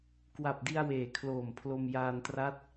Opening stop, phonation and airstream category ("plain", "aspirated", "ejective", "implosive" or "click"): plain